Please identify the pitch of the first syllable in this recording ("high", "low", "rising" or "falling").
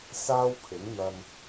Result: high